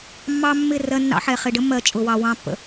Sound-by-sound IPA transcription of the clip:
mː ɑ˦ mː ɪ˦˨ r ɜ˦ nː ɑ̰˦ ħ ɛ˨ χ ɪ˨ ɖ ə˦ mː ɜ˨ t͡ʃʼ ʊ˨ w ɑ˨ w ɑ̃˦ pː ə̰˨

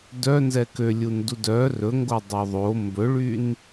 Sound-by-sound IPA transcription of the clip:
d œ n z ɛ k ø lʲ u n d u d œ r ɵ ŋ ɡ o dˤ œ ðˤ o m b ɵ ɭ y n

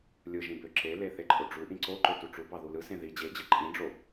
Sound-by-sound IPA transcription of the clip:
lʲ ɯ ʒ ĩ b ø ǁ e l e θ e ǃʼ o ɖ͡ʐ u ʔ ĩ ǀ o ǃ ø t u ʈ͡ʂ u b ɑ ð u l ɯ s ẽ ð i d͡ʑ e d͡ʑ ɯ ǃʼ ĩ ɖ͡ʐ o

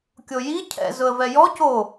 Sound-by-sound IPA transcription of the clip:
kʲ o j i cʰ ɛ̰ z ʊ ə̯ v ɛ j ɔ c o

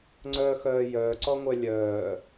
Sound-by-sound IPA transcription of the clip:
ŋ͡ǀ œ x œː j œː ǀ ɔ ŋʷ œ lʲ œː

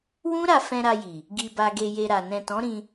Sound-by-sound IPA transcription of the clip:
w ũ˦ ɾ a˧ f ɛ̃˧ ɾ a˧ j i˨ | ɡ i˨ b a˨ ɡ e˨ j e˨ ɾ a˨ n ɛ̃˨ t ɔ̃˨˦ ɾ ĩ˧

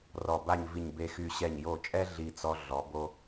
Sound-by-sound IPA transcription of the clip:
r ɔ˧˩ b a˥˧ ɲ v i˧˩ ɲ b e˧ x y˧˩ ɕ ɛ˧˩ ɲ j o˧˩ t͡ʃʼ ɛ˥ ɮ i˧˩ t͡s ɔ˧ ɮ ɔ˩˧ b o˧

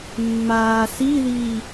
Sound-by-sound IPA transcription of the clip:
mː aː s i ð iː

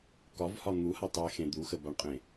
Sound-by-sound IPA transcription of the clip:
k ɒ v h ɒ n̪ u h a tˤ e x ẽ d̪ u x ə b a ɳ qʼ ẽ

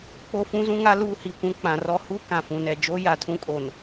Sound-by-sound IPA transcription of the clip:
k͡p o˦ f ũ˦ z ũ˦ ŋ a˦ l uː˦ h i˨ kʷ ũ˦ k͡p ã˨ r ɔ˦ h u˦ k ã˨ f ũ˨ n ɛ˨ d͡ʒ oː˦ j a˨ tʰ ũ˦ kʼ o˨ n

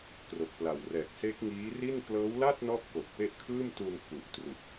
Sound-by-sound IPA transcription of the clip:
k r o˨˩ k̚ p l a˨˩ w r ɛː˨˩ k̚ s e˦˥ k̚ ŋ iː˦˥ r i˥˩ n k l ɤː˦˥ w l a˥˩ t̚ n ɔ˦˥ ʔ k o˨˩ k̚ p e˦˥ ʔ kʰ ɯː˥˩ m t u˧ n f u˨˩ ʔ t r u˨˩ k̚

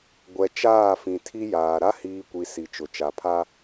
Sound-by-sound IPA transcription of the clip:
ɡʷ ɛ˨ t͡ʃ aː˦˨ f ĩ˨ tʰ i˦ j aː˨ ɾ a˦ h iː˨ kʷ i˨ s i˨ t͡ʃ ʊ˨ t͡ʃ a˨ pʰ a˦

